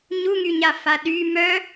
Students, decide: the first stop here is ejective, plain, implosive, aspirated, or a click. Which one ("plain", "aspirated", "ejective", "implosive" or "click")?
implosive